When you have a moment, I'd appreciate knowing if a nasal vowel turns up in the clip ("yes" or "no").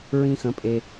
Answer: yes